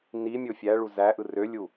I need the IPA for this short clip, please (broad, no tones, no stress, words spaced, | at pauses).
ni mʲofʲæɭu zæʔɯ rølʲu